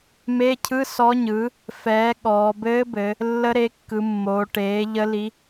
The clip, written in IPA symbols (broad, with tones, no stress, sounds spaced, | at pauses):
m e˧˥˧ cʰ ɯ˧˥˧ s ɔ˧˥ ɲ ɯ˩˥ | f ɛː˩˥ ɠ ɔː˩˧ b ɘː˧˥ b ɘ˩˧ | lː ə˧˥ ɾ e˩˥ kː ɯ˩˧ mː oː˩˧ ʈ eː˩˥ ʎ ə˧˥ l i˧˥